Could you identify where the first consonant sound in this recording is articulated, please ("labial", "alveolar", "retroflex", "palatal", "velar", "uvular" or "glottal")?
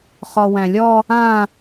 uvular